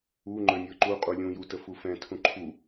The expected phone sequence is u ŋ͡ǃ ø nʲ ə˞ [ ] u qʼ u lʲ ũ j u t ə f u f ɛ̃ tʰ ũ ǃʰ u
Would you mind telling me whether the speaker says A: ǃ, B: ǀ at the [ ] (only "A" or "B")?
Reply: A